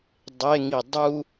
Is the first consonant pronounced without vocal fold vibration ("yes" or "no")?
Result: no